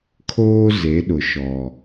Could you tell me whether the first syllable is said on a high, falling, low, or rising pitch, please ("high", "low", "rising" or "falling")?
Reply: high